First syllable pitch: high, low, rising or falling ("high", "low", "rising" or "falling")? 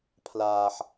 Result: low